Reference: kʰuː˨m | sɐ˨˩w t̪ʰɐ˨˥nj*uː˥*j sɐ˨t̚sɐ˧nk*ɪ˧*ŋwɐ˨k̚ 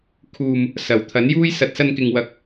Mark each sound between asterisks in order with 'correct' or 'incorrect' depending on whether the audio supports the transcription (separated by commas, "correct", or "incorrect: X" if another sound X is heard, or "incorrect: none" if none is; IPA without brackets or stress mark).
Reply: correct, incorrect: ɪ˨